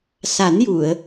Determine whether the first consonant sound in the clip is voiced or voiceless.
voiceless